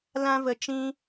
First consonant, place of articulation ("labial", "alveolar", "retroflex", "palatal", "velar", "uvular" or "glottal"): alveolar